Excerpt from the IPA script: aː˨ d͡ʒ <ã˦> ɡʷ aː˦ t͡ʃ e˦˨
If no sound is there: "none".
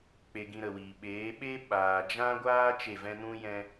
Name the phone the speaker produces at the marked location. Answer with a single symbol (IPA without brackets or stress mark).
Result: ã˦